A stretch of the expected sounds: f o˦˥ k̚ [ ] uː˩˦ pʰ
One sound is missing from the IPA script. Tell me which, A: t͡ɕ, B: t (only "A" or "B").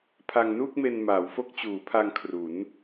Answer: A